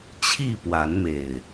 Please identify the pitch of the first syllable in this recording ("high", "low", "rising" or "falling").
falling